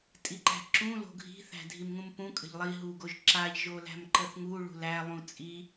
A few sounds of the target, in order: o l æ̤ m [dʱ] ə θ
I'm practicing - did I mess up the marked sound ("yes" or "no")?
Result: yes